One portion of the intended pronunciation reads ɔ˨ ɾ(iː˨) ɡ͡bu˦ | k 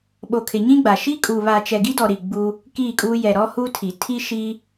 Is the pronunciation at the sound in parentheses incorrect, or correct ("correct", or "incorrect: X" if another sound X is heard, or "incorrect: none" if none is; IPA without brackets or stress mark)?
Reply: incorrect: i˨